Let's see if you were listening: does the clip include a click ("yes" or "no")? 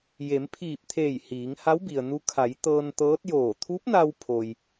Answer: no